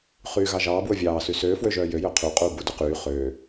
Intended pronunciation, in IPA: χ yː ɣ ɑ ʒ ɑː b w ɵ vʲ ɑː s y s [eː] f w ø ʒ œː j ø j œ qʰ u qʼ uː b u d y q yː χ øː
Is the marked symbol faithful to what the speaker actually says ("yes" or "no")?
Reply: no